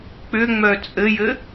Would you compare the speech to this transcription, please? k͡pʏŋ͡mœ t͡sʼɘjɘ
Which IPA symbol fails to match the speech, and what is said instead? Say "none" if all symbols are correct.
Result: none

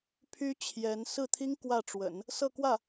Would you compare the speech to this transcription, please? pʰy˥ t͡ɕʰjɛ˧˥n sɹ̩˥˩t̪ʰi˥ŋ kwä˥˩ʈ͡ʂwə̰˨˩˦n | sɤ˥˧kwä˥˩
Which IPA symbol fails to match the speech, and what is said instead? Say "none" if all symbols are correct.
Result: none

